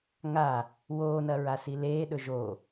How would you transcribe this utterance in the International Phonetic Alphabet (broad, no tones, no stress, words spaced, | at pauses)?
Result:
ŋa | woːnɐɹasi leːɗɵ ʒo